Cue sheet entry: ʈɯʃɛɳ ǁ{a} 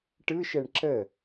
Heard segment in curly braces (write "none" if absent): ə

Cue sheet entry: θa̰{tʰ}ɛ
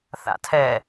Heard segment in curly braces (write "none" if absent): tʰ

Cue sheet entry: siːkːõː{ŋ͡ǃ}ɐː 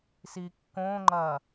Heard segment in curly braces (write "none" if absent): ŋ͡ǃ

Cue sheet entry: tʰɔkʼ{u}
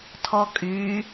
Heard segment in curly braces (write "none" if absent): y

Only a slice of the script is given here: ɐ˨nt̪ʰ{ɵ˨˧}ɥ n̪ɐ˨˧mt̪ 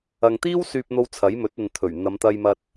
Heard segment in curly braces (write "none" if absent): ɵ˨˩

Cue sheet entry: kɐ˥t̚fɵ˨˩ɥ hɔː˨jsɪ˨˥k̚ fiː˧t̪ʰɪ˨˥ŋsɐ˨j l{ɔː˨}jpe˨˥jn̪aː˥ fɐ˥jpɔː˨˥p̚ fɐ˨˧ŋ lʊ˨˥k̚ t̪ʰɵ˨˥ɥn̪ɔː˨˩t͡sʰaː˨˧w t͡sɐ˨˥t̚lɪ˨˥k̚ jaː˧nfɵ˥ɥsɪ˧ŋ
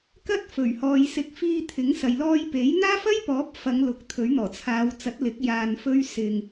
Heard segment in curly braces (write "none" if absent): ɔː˧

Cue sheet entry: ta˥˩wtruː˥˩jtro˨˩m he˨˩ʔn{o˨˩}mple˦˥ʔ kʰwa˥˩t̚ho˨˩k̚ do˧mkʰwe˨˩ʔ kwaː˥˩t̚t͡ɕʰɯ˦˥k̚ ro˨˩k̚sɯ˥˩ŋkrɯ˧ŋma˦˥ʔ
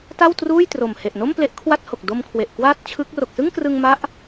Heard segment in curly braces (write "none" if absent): o˥˩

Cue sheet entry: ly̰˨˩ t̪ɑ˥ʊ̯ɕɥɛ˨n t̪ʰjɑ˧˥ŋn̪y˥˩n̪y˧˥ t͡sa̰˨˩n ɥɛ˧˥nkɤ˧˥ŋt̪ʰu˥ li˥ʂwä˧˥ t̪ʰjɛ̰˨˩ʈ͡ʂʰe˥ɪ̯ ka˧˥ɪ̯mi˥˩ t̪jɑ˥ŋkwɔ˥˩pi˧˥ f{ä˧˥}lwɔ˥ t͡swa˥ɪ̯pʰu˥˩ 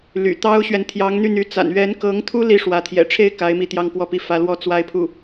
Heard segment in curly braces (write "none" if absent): ä˧˥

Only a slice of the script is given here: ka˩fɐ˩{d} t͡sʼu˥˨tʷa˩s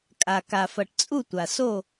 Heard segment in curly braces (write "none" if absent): ʈ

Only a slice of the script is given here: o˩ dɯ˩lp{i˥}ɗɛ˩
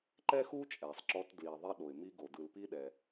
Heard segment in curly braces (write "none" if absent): i˥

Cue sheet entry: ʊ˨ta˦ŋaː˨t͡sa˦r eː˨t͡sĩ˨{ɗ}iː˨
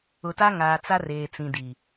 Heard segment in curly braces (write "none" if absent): d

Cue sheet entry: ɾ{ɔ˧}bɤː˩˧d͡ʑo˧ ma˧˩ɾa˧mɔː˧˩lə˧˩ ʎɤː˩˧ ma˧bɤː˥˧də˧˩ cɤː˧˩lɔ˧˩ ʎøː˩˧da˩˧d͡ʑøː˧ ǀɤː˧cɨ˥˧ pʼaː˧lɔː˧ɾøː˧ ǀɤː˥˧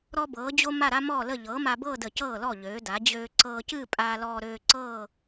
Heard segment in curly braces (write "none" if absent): ɔ˧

